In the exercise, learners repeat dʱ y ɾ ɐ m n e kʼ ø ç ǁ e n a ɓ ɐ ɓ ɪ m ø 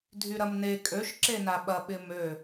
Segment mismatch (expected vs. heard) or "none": ç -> ʃ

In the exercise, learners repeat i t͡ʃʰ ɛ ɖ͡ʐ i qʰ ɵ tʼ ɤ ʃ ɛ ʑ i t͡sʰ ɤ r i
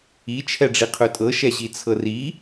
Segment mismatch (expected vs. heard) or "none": none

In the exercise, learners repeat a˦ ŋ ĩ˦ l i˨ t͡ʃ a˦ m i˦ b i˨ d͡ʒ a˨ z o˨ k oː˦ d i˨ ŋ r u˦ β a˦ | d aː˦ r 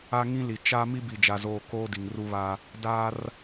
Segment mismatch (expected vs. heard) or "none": o˨ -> oː˨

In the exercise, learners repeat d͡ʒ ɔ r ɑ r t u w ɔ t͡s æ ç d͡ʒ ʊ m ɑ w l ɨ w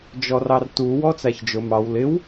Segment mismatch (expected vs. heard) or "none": ɨ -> ɪ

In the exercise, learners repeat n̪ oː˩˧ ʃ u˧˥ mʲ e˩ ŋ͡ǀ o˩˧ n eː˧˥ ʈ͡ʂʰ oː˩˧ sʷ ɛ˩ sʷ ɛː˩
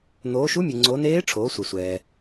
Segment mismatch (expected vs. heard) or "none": none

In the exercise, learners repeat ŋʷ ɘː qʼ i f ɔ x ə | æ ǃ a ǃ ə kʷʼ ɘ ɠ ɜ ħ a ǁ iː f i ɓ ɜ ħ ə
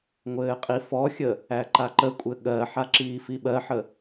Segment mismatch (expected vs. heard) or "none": x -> xʲ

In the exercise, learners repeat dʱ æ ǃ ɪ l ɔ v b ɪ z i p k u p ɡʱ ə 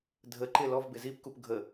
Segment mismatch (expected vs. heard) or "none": æ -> ə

